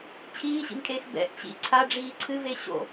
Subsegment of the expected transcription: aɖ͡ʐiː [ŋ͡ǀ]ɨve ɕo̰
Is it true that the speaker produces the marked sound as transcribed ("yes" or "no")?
no